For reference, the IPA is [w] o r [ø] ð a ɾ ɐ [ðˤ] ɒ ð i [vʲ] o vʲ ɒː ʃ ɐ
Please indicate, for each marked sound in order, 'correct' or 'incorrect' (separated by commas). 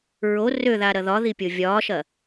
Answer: incorrect, correct, incorrect, incorrect